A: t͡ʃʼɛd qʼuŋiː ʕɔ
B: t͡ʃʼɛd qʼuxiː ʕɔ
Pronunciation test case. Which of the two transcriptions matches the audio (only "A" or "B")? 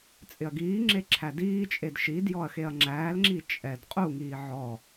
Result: A